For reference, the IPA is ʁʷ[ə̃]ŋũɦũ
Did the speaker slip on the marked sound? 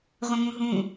no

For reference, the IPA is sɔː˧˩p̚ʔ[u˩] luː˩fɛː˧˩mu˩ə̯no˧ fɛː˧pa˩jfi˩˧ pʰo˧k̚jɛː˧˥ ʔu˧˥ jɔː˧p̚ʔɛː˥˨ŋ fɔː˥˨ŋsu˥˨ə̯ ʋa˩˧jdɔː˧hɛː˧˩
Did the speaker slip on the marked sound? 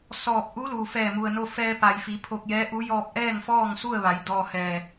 yes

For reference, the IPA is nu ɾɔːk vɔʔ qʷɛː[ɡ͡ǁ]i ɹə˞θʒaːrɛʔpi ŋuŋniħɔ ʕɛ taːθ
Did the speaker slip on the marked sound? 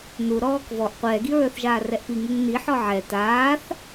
yes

